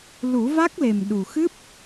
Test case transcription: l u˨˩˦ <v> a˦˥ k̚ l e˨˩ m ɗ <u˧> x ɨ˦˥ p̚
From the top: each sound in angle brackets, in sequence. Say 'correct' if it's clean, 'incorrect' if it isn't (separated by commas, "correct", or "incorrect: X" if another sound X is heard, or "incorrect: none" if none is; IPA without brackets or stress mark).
correct, incorrect: u˨˩